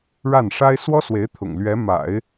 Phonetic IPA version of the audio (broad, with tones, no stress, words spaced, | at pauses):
ɻa˥˩nʂa˥ɪ̯ swɔ˥swe˧˥ɪ̯ t̪ʰʊ̰˨˩ŋlɥɛ˧˥ma̰˨˩˦ɪ̯